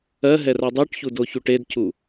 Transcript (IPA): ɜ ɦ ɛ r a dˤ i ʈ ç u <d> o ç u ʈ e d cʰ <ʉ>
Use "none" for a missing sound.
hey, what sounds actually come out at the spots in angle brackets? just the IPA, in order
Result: d, u

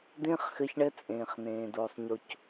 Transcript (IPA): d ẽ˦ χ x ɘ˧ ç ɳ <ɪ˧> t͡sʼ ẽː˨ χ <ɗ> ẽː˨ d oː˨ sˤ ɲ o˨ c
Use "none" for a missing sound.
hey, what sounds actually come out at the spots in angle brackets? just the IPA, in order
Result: ɛ˧, n

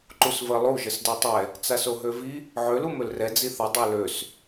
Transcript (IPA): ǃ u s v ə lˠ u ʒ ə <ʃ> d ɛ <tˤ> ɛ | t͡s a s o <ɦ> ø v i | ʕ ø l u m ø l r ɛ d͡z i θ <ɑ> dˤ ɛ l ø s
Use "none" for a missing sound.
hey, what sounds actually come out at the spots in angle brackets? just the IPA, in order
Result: s, tˤ, ɦ, ɐ

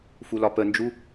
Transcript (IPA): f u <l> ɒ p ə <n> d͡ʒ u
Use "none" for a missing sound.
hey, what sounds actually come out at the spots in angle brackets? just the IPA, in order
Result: l, n

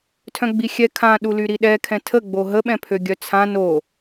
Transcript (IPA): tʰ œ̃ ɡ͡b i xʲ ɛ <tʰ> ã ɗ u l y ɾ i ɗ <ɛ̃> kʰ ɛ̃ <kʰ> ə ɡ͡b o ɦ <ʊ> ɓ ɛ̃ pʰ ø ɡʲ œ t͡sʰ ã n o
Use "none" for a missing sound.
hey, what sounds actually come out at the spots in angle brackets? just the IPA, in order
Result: kʰ, ɛ, tʰ, ə

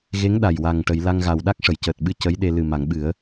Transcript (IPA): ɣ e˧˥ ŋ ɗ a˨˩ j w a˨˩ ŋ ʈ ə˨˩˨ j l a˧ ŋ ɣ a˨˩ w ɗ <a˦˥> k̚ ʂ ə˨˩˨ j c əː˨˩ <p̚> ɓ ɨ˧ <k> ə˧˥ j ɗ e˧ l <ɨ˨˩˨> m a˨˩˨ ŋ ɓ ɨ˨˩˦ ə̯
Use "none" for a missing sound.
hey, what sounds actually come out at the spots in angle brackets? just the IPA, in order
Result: a˦˥, t̚, c, ɨ˨˩

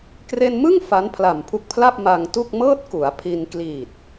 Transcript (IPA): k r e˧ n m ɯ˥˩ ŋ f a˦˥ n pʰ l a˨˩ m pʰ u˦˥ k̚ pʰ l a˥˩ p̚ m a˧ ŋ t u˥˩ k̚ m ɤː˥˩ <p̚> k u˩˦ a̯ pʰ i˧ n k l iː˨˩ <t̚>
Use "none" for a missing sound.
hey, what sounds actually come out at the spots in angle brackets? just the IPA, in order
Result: t̚, t̚

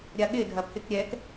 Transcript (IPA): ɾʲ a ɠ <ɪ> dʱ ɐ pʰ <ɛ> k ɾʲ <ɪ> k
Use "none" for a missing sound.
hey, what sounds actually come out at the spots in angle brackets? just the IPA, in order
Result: ɪ, ɪ, ɛ

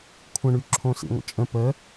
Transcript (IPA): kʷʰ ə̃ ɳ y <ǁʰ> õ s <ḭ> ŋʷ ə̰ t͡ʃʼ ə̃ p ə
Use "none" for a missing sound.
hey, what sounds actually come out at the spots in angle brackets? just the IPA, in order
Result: ǁʰ, ḭ

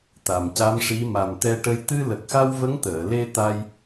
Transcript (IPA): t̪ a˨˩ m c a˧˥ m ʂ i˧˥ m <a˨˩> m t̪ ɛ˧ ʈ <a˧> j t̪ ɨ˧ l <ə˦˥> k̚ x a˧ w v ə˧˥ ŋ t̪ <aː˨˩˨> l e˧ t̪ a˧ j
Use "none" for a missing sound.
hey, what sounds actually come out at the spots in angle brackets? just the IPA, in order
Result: a˨˩, ə˧, ə˨˩, əː˨˩˨

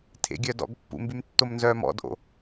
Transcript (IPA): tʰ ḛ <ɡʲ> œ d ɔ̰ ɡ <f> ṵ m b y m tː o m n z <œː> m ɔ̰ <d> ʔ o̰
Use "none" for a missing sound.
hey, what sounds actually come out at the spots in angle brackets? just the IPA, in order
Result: ɡʲ, pː, œː, d

